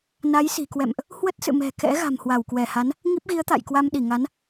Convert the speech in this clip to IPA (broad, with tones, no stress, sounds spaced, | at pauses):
n a˨˦ j s i̤˨˩ k w ɛ̰˧˨ m ʔ | h w ə˦˥ t̚ s ɨ̰˧˨ m ɛ̤˨˩ k ɛ̰˧˥ ɣ a̤˨˩ m h w a˧˩ w k w ɛ˧˩ h a˨˦ n | ŋ i˦˥ p̚ ɣ i˨˦ ə̯ t̪ a̰˧˨ j k w a˧ m ɗ i˧˩ ŋ a˨˦ n